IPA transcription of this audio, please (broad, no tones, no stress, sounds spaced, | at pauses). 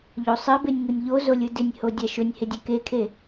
ʎ o sˤ ɘ b e nʲ ŋ u nʲ ʎ o z o lʲ ɯ d ɪ nʲ h o dʲ a ʃ ɵ nʲ h ɪ dʲ ɛ k e kʰ e